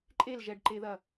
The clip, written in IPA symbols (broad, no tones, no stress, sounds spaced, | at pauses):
ǃʼ e l ʒ ɛ ɖ ǃ e ð ɐ